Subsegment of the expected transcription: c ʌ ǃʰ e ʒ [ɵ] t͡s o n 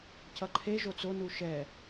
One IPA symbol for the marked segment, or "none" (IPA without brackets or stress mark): o